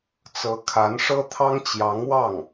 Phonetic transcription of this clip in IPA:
t͡s ɤ˧˥ kʰ a˧˥ n ʂ ɤ˥ t̪ʰ ɑ˥ ŋ t͡ɕ j ɑ˧˥ ŋ w ɑ˥˩ ŋ

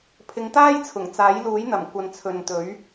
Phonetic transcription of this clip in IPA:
pʰ ɪ˨˧ ŋ t̪ aː˥ j t͡sʰ ʊ˨˩ ŋ t͡s aː˨˥ j l uː˨˥ j n̪ ɐ˨˩ m kʷ ɐ˨ n t͡sʰ ɵ˨ n t̪ ɵ˨˥ ɥ

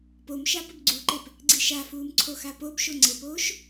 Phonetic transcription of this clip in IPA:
p o m ʃ a p ə b ɡ͡ǀ u ǃ e p | ɡ͡ǀ i ʃ a f uː m ǀʰ o x a p o b ʃ o ŋ͡ǀ ɘ p oː ʃ

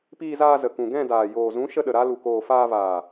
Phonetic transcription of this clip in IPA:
p iː˧ z aː˧ z ə˨ k ũ˨ ɡ ɛ̃˦˨ d aː˨ j oː˨ z ũ˨˦ ʃ ə˧ ɗ ə˨ ɾ a˦ l u˨ k oː˨ f aː˧ v aː˨

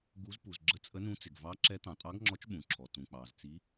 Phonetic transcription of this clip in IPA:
ɡ u˨˦ z p u˩ z ɡ͡ǁ ə˨˦ t͡sʼ ə˨˦ n ũ˨˦ t͡s ɪ˩ ɡ v ɑ˨˦ ǁ ɛ˨˦ t̪ ɑ̃˩ tʼ ɑ˨˦ ɡ ŋ͡ǁ ɔ˨˦ t͡ʃ ɓ ũ˩ ǁʰ ɔ˩ t ũ˩ k͡p ɑ˩ z t͡s i˨˦

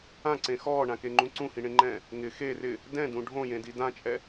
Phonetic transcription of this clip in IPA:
ã ǀ ẽ x ɔː ɳ ã k e ŋ͡ǃ ũ ǀ ũ h ĩ ɳ ẽ ŋ͡ǃ ɛ̃ː | ŋ ɪ x e r ɪ | d ɛ̃ d ũ ɖʱ õ j ẽ d i d ã t͡ʃʼ ɛ

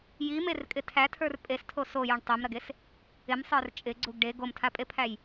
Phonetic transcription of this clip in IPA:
j i m e r kʼ ɪ tʰ æ tʰ ə˞ r pʼ e s tʰ o s o j u ɳ tˤ ɛ m ɾ ɐ ɡ e s | ɪ m sˤ ə˞ r t͡ʃʼ ɪ ɡ͡ǀ u ɡ ɖ e ɡ o m tʰ a pʼ e pʰ æ j

